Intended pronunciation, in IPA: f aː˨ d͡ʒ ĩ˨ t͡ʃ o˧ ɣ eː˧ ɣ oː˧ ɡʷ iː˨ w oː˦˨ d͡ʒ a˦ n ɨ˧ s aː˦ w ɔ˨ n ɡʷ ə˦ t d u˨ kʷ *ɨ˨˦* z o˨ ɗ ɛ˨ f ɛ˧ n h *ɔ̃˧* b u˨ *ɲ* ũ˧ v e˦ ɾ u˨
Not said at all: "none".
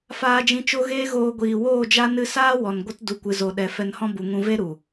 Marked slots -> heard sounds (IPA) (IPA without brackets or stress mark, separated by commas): ɨ˨, ɔ̃˦, ŋ